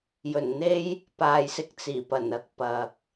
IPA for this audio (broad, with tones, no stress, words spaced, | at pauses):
jɵ˨˩nn̪e˥j | paː˨jsɪ˧k̚t͡siː˨˩pɐ˨˩n ɐ˧k̚pɐ˨k̚